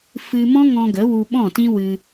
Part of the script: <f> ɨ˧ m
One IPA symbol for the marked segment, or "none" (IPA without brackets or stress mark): f